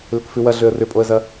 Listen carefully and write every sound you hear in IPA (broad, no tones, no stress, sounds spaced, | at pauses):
l ʏ k f ʉ w ɐ ɮ ø ə̯ r ʏ pʼ o ə̯ z ɐ